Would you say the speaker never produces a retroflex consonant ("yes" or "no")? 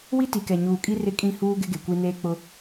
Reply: yes